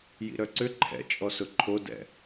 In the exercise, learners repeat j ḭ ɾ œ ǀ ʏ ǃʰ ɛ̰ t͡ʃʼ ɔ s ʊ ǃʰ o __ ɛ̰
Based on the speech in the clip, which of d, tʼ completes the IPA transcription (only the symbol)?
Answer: d